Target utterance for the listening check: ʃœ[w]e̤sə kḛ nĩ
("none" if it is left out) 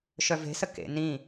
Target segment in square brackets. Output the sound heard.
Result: v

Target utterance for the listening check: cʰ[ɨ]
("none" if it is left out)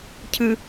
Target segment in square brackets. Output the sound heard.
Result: ɨ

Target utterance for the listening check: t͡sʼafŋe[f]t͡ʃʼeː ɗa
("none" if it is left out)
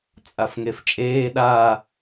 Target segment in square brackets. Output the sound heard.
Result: f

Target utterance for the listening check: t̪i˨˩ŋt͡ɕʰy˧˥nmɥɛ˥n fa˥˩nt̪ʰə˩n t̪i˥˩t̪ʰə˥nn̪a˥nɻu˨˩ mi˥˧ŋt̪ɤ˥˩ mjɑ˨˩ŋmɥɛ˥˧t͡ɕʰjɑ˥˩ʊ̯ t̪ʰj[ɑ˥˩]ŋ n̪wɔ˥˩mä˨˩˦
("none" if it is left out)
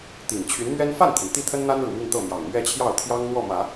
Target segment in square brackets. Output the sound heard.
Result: ɑ˥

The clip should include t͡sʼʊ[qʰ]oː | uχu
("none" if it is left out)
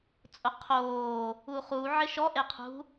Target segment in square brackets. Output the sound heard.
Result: qʰ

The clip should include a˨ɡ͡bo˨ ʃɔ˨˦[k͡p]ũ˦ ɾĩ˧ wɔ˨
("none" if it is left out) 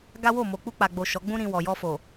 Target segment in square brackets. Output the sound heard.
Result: ɡ͡b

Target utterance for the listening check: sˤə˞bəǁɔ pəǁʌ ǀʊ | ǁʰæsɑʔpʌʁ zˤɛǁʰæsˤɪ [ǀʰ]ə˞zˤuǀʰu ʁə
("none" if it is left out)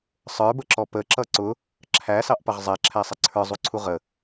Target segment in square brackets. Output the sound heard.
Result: ǀʰ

